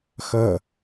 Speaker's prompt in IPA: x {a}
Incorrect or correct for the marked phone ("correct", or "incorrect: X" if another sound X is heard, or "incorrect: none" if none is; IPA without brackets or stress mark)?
incorrect: ʌ